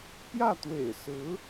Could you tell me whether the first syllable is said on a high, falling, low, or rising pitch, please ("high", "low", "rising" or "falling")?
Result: falling